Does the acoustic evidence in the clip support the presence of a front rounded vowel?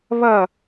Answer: no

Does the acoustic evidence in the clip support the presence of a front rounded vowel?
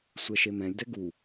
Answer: no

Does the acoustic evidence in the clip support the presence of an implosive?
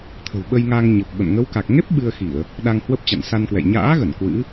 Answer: yes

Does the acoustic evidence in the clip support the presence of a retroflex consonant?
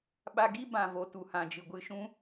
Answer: no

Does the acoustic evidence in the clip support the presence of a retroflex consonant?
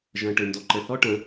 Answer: yes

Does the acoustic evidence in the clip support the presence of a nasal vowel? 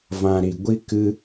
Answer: yes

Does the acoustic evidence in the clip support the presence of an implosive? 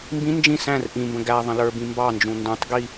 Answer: no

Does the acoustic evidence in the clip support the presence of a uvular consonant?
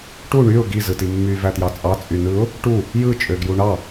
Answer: no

